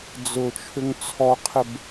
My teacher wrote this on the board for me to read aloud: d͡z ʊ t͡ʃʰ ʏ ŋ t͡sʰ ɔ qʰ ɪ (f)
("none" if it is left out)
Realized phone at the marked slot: b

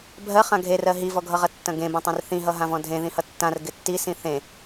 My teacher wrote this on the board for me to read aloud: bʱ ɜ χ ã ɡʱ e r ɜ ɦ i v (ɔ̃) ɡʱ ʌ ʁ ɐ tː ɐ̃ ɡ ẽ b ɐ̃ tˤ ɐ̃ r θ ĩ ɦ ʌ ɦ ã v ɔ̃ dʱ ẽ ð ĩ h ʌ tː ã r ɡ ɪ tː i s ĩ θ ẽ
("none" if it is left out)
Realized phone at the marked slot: ɔ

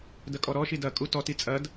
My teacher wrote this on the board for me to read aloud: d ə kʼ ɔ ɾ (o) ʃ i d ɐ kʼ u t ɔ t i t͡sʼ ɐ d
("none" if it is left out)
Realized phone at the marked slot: ɔ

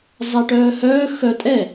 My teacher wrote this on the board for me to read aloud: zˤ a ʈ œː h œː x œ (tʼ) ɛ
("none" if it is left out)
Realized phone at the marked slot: tʼ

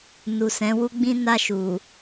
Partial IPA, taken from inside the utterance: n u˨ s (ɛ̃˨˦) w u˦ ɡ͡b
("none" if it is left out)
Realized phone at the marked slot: ɛ̃˨˦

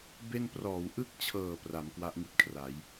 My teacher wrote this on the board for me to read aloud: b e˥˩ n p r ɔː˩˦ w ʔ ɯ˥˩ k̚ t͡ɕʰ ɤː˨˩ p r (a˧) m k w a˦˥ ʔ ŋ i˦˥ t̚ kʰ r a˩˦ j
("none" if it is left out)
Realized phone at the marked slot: a˩˦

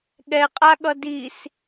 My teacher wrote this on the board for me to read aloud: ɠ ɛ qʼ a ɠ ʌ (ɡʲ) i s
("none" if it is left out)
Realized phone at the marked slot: d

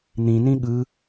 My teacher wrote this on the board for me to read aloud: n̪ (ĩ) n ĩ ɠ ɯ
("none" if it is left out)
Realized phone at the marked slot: ĩ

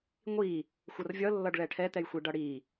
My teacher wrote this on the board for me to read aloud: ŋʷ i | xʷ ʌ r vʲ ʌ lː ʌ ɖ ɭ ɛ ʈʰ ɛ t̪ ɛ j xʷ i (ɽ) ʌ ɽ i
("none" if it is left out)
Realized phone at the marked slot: ɖ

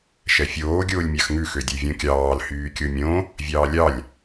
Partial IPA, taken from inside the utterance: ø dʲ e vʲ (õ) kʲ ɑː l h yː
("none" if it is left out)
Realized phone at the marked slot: õ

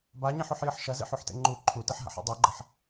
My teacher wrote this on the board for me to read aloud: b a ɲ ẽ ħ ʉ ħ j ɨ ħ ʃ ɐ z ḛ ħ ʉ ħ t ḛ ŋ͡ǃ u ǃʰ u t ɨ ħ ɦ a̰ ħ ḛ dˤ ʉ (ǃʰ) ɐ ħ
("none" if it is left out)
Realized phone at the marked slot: ɡ͡ǃ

